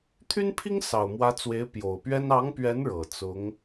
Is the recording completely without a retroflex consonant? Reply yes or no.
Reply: no